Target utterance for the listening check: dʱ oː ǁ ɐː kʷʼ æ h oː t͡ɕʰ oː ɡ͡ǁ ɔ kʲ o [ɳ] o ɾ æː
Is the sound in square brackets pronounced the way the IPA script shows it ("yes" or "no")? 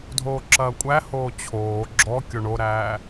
yes